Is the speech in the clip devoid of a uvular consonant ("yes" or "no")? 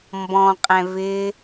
no